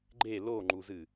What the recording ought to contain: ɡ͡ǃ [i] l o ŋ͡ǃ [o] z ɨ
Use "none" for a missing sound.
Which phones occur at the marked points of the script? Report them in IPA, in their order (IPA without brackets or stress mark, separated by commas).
e, u